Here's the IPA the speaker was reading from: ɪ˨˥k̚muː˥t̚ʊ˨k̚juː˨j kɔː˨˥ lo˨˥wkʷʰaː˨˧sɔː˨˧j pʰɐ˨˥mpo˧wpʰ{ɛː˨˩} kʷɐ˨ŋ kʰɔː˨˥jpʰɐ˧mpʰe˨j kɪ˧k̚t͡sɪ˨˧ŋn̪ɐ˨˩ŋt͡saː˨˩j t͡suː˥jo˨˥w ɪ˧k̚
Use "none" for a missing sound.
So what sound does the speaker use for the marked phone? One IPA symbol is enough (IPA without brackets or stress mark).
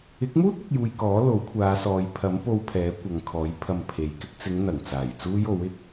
ɛː˨˥